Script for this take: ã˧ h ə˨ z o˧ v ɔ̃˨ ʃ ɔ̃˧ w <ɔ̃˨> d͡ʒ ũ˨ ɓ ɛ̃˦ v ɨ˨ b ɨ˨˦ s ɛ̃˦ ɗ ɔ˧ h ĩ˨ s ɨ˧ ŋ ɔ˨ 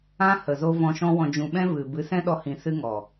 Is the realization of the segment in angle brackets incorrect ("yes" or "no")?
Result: no